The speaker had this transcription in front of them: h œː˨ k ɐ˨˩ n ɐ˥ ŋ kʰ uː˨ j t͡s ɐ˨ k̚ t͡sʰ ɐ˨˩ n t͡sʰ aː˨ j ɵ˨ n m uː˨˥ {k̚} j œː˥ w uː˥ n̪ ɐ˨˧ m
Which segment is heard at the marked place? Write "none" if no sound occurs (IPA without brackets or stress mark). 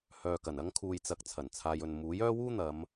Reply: none